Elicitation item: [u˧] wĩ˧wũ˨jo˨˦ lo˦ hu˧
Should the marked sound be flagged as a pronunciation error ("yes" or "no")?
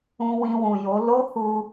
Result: yes